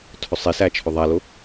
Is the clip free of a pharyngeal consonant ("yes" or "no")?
yes